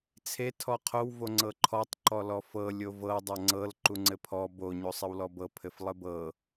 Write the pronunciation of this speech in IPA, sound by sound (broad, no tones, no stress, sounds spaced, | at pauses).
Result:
t͡sʰ e tʰ ɔ qʰ o w v o ŋ͡ǀ ɤ ǃʰ ɔ tˤ ǃ ɔ l ɔ f ɤ lʲ o v ɤ dˤ ʌ ŋ͡ǀ ɤ l ǃ u ŋ͡ǀ ɘ pʰ ɔ b o ɲ o sˤ ɘ w l ɔ b ɤ pʰ ɘ f lˠ ɘ b ɤ